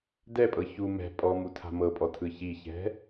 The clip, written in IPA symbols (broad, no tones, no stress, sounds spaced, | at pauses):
d ɛ pʼ ɤ ç u m ɛ̤ pʼ ɔ m u tʰ a̤ m ɤ pʼ ɔ tʰ ɯ ç i ç ɛ̤